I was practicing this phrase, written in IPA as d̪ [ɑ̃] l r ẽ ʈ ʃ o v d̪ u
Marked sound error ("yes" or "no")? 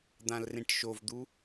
yes